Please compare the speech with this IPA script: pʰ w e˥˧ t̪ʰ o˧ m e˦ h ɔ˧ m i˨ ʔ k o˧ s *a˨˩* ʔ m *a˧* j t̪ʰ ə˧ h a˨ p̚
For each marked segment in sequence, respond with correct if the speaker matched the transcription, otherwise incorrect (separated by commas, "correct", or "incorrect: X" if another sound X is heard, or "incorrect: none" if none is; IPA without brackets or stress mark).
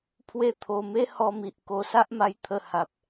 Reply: incorrect: a˦, correct